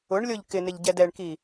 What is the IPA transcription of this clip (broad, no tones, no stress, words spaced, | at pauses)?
ʊɳlʲoʎ kɪnɪʎɟɛd ɛɳki